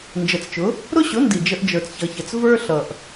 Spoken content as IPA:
n d͡ʒ ə˨ t͡s t͡ʃ ʊ˨˦ | ɾ ʊ˦ ɕ ʊ˨˦ n d i˨ d͡ʒ ə˧ ʔ d͡ʒ ə˞˨ t͡s ç ʌ˨ ç ə˨ t͡s v ə˞˦ ɬ ʌ˨ ʔ

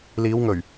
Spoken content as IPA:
l iː˨˧ w ŋ ɵ˨˩ ɥ

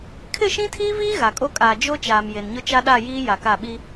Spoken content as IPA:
kʰ ɪ˦˨ ʃ ĩ˦ tʰ iː˦ v iː˦ ɣ a˨ kʼ o˦ kʼ aː˨ d͡ʒ o˦ t͡ʃ aː˨ m j e˨ n ɲ ʊ˦ t͡ʃ a˦ ɗ a˦˨ j iː˦ j a˨ k a˦˨ ɓ i˦

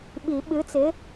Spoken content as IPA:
ɓ i˨˩˦ ɓ ɨ˨˥ t͡s ɪ˨˥

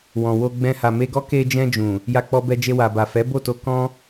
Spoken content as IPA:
w ɔ̃˨ w o˧ ɡ͡b ɛ̃˧ h a˨ m e˧ ɡ ɔ˦ k e˧ d͡ʒ ɛ̃˧ d͡ʒ ũ˨ | j a˧ k͡p ɔ˧ b ɛ˧ d͡ʒ e˧ w a˨ b a˨ f ɛ˨˦ b o˦˨ t o˧ k ɔ̃˦

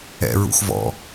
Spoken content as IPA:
ɛ̰ ɹ ṵ x v ɔ̰

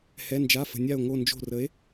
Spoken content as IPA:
h ɛ˩˧˩ n d͡ʒ a˩˧˩ f ə̤˩ nʲ a˧˩ o̯ ŋ o˧˩ n d͡ʒ o̤˧˩ r ə˨˥ e̯

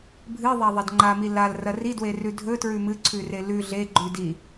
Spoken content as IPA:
bʱ ɨ ðˤ a ðˤ ɐ d ŋ͡ǃ a m i l a l r ɐ r i d w e r ʉ dʱ ɵ t ɹ ʉ m ɨ ǀʰ ʉ r e l ʉ ɮ e ɡ͡ǃ ʉ d i

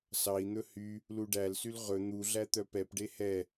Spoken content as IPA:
s ɑ i̯ n̪ ɵ h y | l u ɖ æ l s y l ʁ ɵ n̪ u ɮ æ t̪ œ p ɛ p ɖ e h ɛ

